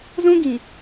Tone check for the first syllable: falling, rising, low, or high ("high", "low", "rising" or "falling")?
high